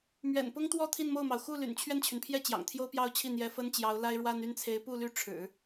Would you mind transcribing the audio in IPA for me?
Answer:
m ɥ ɛ̰˨˩ n p ʊ˥ ŋ t̪ w ɔ˥˧ t̪ʰ i˥˧ n m o˥˩ ʊ̯ m ɑ˩ ʊ̯ x u˥˩ l y̰˨˩ n t͡ɕʰ ɥ ɛ˥˩ n t͡ɕʰ y˩ n pʰ j ɛ˥˩ t͡ɕ j ɑ̰˨˩ ŋ t̪ʰ j o˥ ʊ̯ p j ɑ˥˧ ʊ̯ t͡ɕʰ i˥˩ n̪ j ɛ˧˥ f ə˥ n t͡ɕ j ɑ˧˥ ʊ̯ l a˥ ɪ̯ ɻ w a˥ n y˥˩ n t͡sʰ e˧˥ ɪ̯ p u˥˧ l y˥˩ ʈ͡ʂʰ ɻ̩˨˩˦

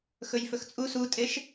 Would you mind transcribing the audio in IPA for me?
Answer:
x ɵ j f ɵ x t͡sʼ u s u tʼ e ʃ

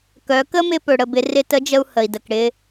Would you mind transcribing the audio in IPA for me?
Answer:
k œ˩˧ k ə˥ m ɪ˧ p ɵ˩ ɽ ə˩ b ɪ˩˧ r ɪ˧ t ə˧˥ d͡ʒ ə˧ u̯ h ə˩ i̯ d ə˩ k ɽ ɪ˧

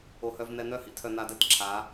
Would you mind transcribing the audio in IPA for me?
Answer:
o˨ h œ˨ v n̪ ɛ˨ n̪ œ˦˨ h ḭ˦ tʰ œ˨ n a˨ d ɛ˨ t ǁʰ a˨˦

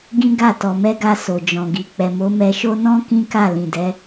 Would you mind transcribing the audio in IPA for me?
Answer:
ɡ ĩ˦ ɡ a˦˨ t ɔ˨ m ɛ˧ ɡ a˧ s o˨ d͡ʒ ɔ̃˨ ɡ i˨ k͡p ɛ˨ m o˨˦ m ɛ˧ ʃ o˦ n ɔ̃˦ k ĩ˦ k a˦˨ l ĩ˨ d ɛ˨˦

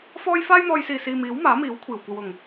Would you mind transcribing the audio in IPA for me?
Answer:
f ɔː˥ j f aː˥ j n̪ ɔː˧ j s iː˨ s iː˨ m iː˨˥ w m aː˨˥ m iː˨˥ w kʷʰ iː˨˩ w kʷ ɐ˨ w ʊ˨˩ ŋ

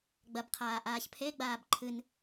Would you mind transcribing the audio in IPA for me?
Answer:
ɡ͡b ɐ b qʰ aː ʔ aː ç pʰ e ɡ͡b aː b ǃʰ ɨ n

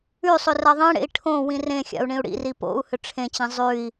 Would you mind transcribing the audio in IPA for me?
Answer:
ʉ sˤ ʏ r a ðˤ ĩ ɽ ḛ i̯ ʈʰ õ w ĩ r ẽ xʲ a̰ u̯ ɳ ĩ u̯ ɽ ḭ r i p o̰ u̯ h ʏ ʈ͡ʂʰ ẽ t͡ɕ ĩ zˤ ʉ i̯

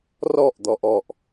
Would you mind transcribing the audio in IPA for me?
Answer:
r ɔ ʔ d̪ ɔ ʔ ɔ ʔ

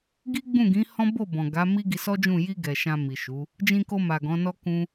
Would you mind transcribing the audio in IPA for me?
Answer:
ɡ i˦ ɡ͡b ũ˦˨ ɡ ĩ˨˦ h ɔ̃˦ b o˦˨ b ɔ̃˨ ɡ a˨˦ m i˦ ɡ i˧ s ɔ˦ d͡ʒ ũ˦˨ j i˧ ɡ ɛ˨ ʃ ã˧ m i˨ ʃ u˨˦ | d͡ʒ ĩ˧ k o˧ m a˨ ɡ ɔ̃˨˦ n ɔ˦ k ũ˦

